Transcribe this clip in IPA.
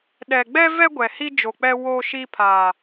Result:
ɗ ɛ˨ ɡ͡b ɛ˦ v ɛ˦ ɡʷ ɛ˨ h i˦ d͡ʒ o˨ k͡p ɛ˦ w o˦ ʃ i˦ pʰ aː˨

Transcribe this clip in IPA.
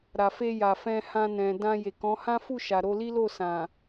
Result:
ɾ a˨ f e˧ j a˨ f ɛ̃˧ h ã˧ n ɛ̃˨ d ã˧ j e˨ k ɔ̃˨˦ h ã˦ f u˦˨ ʃ a˨ ɾ o˧ l i˦ l o˦˨ s ã˨

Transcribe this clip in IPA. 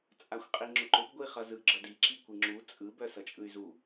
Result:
t͡sʼ a xʷ qʼ i ŋ͡ǁ ʊ ǃ ʊ b ɡʷ i χ ʌ z ɯ ɡ͡ǁ ʌ d i ǁ i kʷ i ŋ͡ǁ u t͡sʼ ɯ b œ s ʌ t͡ʃʼ ɯ y̯ z u

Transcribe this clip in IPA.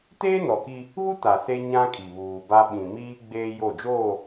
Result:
t eː˦ n ɔ˨ k i˦ | β u˦ t a˨ s e˦ ɲ ã˦ kʼ i˨ β uː˨ b a˦ ɓ ĩ˨ m iː˦ ɡ͡b eː˦ j o˦˨ d͡ʒ oː˦˨

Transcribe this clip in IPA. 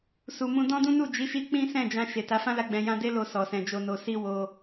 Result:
s u˨ m ũ˧ d ɔ̃˦ d ũ˦ n u˦˨ d͡ʒ i˨˦ ʃ i˧ k͡p ĩ˦ s ɛ̃˦˨ d͡ʒ ã˧ ʃ e˨ t a˨˦ f ã˦ l a˧ ɡ͡b ɛ̃˧ j ã˦ d e˦ l o˧ s ɔ˨ s ɛ̃˨ d͡ʒ o˨ n o˨ s i˧ w o˧

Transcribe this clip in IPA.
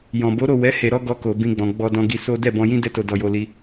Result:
j ɔ̃˨ b o˨˦ ɾ o˦˨ w ɛ˨˦ h e˧ ɾ ɔ˦ ɡ ɔ˧ k o˨ b ĩ˧ ɡ͡b ɔ̃˨ ɡ͡b ɔ˧ d ɔ̃˧ ɡ i˧ s o˦ d ɛ˦˨ b ɔ̃˧ j ĩ˦ d ɛ˦ t o˧ d ɔ˧ j o˧ l i˧

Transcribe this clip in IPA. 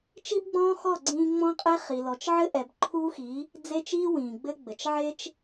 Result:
t͡ʃ i˦ b ɡ͡b ɔ̃ː˦ x ɔ˦˨ ɡ͡ǀ ĩː˦ ŋ͡m ɔ̃˦ qʼ e˦ χ i˨ l ɔ˨ t͡ʃ ʕ ɘ˦ ʔ ɛ˨ b ǃʰ uː˦ x i˨˦ | d͡z e˦ t͡ʃ iː˦ w ĩː˨ ɡ͡b ɘ˦ ɡ͡b ɘ˨ t͡ʃ ʕ e˦ t͡ʃ

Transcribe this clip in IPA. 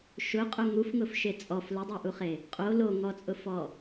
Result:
ʃ ʊ qʼ o ŋ u f ŋ ʊ f ʃ e t͡sʼ ɔ f l ʊ dˤ a ʔ u χ e | qʼ o l o ŋ ɔ t͡sʼ ʊ f ɔ

